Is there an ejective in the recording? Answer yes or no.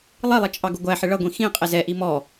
yes